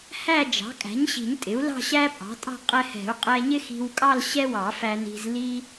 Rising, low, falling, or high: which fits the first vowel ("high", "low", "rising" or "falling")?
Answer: falling